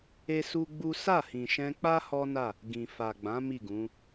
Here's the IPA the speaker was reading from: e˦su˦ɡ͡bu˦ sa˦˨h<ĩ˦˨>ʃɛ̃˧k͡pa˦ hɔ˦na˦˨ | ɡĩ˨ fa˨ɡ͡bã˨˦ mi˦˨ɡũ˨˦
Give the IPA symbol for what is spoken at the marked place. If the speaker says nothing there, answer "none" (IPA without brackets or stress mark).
ĩ˨